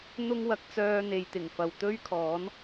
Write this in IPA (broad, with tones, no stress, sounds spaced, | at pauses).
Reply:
n̪ ʊ˥ ŋ w ɐ˧ k̚ t͡s œː˧ n̪ e˨ j t̪ ɪ˨˩ ŋ f ɐ˨ w t̪ ɵ˥ ɥ kʰ ɔː˨˥ n